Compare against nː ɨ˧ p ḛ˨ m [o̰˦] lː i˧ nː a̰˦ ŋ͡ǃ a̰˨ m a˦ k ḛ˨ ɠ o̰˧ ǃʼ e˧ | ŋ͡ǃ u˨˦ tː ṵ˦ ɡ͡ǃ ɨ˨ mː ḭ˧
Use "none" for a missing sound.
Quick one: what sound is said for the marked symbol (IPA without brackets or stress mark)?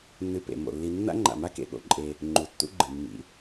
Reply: o̰˨